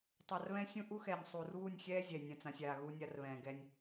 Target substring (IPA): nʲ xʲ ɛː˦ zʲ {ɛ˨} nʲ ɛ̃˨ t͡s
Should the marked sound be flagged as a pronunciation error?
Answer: no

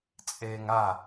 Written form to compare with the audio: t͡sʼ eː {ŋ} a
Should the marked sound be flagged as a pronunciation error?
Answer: no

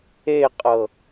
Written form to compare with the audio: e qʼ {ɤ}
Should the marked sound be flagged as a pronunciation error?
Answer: no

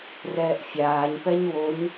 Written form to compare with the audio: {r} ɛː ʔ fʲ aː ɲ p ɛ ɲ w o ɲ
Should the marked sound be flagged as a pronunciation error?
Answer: no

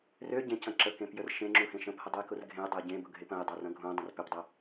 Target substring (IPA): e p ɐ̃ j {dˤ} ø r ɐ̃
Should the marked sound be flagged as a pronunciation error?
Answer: no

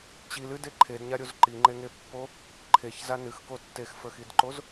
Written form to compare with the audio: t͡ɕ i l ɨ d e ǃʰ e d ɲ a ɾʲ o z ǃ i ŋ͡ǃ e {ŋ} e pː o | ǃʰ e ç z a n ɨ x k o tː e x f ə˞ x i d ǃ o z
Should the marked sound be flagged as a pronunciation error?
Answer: no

